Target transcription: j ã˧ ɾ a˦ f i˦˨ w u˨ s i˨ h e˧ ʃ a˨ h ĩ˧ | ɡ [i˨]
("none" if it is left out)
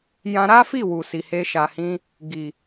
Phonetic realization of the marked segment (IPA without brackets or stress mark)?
i˨